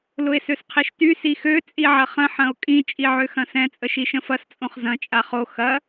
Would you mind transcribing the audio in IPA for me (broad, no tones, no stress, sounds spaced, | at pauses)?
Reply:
l ʊ e̯ s ø s qʰ i ʃ t y s i x ø t͡sʼ i ʕ ɐ χ ə̃ ħ ɐ̃ o̯ kʼ ĩ t͡ʃʼ i ʕ ø x ɐ̃ s ɛ̃ t͡sʼ ə ʃ i ʃ ə̃ f ɐ s t͡sʼ õ χ z ɐ̃ t͡ʃʼ a χ o x ɐ